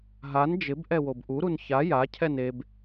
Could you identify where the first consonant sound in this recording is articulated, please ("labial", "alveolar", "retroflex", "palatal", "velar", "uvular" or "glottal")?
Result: glottal